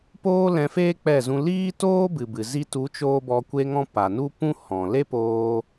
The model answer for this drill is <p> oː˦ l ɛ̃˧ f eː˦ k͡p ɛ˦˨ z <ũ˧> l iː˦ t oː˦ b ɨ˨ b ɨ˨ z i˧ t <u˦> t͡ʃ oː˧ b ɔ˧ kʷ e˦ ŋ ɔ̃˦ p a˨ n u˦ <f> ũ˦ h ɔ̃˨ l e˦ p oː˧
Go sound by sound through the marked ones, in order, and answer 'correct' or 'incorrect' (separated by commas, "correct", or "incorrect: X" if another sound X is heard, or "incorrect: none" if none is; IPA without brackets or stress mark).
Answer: correct, correct, incorrect: u˨˦, incorrect: p